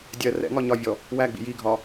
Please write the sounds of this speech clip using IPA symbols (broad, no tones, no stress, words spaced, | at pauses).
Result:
dʲɜ rɛ̰ ŋɒɲɒvʲɔ | wæɡ͡bḭ jiɡʱɒ